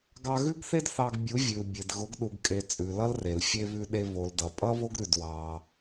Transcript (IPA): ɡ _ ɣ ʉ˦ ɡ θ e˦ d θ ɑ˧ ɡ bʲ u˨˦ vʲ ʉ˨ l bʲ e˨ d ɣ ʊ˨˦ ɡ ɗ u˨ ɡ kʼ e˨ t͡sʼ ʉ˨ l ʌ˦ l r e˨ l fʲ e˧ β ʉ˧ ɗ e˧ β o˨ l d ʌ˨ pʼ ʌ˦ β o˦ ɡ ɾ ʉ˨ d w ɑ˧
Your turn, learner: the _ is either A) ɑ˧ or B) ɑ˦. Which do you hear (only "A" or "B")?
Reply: A